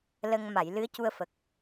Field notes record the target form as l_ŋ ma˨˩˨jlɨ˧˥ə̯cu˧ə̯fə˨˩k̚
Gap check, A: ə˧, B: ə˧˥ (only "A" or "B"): A